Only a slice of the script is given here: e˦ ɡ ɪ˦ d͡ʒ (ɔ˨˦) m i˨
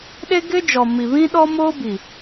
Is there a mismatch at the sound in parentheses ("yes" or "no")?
yes